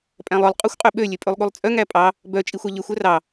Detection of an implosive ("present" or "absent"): present